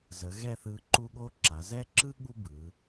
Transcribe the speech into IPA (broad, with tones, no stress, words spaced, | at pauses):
zə˩˧ɣɛ˥˧θɯ˧ ǃu˥ɠo˥ǁa˩˧ zɛ˥ ǁɯ˥ ɠu˥bɯ˩˧